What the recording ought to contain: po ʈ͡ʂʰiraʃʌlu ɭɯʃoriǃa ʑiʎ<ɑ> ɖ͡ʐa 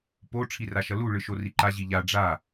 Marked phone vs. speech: incorrect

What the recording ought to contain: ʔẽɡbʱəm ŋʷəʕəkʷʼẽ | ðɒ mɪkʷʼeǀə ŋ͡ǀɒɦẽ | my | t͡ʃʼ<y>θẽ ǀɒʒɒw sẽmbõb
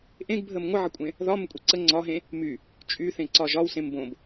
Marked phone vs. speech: correct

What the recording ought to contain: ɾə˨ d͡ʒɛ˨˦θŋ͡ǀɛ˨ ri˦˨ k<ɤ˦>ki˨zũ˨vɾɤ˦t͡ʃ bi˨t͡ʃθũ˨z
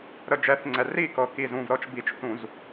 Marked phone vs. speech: incorrect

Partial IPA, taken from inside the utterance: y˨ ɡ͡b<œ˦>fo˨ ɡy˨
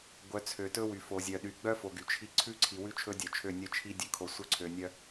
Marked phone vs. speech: correct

